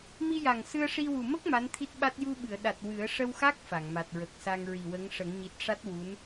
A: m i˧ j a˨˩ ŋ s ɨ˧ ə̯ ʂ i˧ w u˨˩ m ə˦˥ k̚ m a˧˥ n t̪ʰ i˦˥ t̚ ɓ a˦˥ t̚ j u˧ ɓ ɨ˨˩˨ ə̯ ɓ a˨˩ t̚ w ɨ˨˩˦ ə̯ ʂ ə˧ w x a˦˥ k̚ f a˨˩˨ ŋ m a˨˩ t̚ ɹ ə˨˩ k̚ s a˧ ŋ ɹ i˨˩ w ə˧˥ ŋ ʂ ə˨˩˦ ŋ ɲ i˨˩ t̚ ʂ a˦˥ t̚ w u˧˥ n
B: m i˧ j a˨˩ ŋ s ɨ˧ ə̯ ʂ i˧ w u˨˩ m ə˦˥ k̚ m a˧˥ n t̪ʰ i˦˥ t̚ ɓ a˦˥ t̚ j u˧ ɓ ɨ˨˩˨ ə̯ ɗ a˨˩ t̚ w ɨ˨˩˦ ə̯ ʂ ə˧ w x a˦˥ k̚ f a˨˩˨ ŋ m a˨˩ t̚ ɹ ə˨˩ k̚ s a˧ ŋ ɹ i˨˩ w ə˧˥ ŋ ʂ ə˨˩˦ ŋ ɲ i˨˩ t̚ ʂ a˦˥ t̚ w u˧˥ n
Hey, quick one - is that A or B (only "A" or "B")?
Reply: B